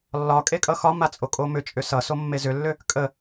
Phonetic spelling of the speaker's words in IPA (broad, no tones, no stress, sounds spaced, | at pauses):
lː ɒ kʼ e kʼ ʌ x ɒ m a t͡sʼ o kʼ o m ʏ t͡ʃʼ ʏ s ʌ s o mː e z ʏ lː ʏ | kʼ ə